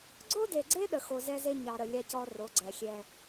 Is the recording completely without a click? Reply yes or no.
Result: no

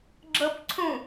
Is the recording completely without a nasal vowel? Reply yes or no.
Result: no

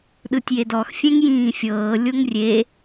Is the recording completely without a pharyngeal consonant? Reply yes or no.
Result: yes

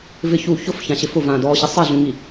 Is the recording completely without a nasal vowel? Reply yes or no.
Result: no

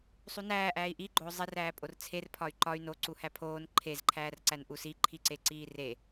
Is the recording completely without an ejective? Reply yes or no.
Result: no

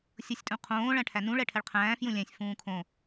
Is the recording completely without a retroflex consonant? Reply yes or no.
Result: no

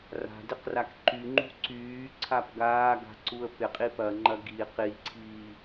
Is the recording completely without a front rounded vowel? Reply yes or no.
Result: no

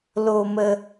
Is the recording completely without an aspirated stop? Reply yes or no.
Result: yes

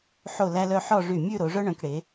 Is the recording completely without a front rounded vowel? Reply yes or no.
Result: no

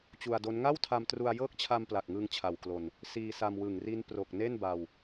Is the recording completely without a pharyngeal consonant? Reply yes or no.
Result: yes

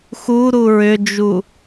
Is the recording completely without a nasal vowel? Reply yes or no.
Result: yes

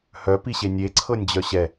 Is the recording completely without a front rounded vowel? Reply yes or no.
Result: no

